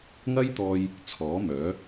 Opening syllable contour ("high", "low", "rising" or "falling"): high